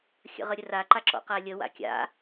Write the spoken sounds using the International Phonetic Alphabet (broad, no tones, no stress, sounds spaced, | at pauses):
xʲ ə̰ ʁ ə ɾʲ ə r a ǃ a ǁ ɔ̰ q a lʲ ə w a̰ kʲ a̰